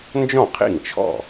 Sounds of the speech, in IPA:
nd͡ʒɔ̃˥˩qʰḭ˥˩ŋt͡ʃʰɔ̰˥˩

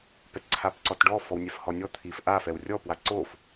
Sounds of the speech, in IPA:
pɛtǀʰapǀɔtɖɔ fɔwnʲɛfhɔnʲɔ t̪ʰif ʔa fɛwrʲɔ pwaǀof

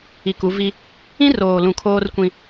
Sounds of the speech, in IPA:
i˨ku˨˦vi˦ | ĩ˦roː˨lũ˨ kʰoː˦rkʷĩ˦

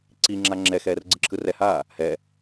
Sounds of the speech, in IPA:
ǀiŋ͡ǁa ŋ͡ǁɛxɛːr ɡ͡ǀɯǁʰɯrɛhaː | hɛ

